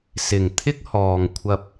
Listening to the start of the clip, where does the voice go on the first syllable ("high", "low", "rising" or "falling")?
low